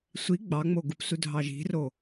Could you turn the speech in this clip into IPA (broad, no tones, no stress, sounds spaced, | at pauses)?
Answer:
sʷ i ɡ͡b ɑ ŋ͡m o ɡ u p s u dʱ ɑ ʒ i̤ r o